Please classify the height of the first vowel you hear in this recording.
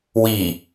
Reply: high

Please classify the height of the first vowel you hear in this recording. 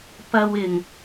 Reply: low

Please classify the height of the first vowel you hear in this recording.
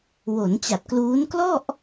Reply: mid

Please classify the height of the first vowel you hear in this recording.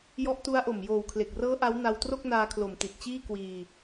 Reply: mid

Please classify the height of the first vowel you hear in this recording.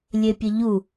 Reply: mid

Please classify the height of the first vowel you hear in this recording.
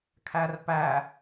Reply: low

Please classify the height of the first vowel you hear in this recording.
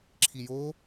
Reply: high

